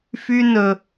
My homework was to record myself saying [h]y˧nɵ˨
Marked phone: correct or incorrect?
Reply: incorrect